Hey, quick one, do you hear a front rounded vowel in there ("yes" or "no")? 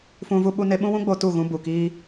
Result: no